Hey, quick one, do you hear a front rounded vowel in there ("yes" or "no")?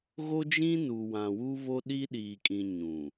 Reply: no